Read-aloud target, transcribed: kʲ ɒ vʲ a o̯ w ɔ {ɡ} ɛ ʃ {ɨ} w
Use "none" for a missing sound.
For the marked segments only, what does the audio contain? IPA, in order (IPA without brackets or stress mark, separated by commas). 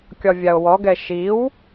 ɡ, i